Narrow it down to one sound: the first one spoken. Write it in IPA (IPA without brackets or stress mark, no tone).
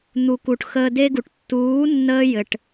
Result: n̪